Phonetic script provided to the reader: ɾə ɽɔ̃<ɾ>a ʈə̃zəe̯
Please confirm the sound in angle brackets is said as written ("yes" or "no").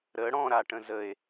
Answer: yes